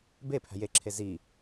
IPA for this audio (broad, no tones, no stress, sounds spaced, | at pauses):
b e pʰ æ̤ j e ǁʰ e z i